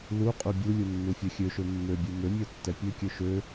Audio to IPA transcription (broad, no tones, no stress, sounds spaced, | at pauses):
l u qʼ u bʲ u lʲ u nː u fʲ ɛ xʲ ø ʃ ø mː ø bʲ u m ø mʲ ɛ tː ɛ pʲ ø kʲ ø ʃ ø